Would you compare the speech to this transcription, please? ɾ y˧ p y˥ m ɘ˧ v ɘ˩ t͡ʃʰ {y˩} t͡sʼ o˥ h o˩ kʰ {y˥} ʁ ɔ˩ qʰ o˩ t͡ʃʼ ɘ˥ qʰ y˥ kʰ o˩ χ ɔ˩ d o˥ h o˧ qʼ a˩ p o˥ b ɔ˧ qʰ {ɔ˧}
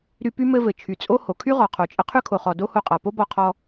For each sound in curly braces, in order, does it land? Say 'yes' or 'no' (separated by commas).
yes, yes, yes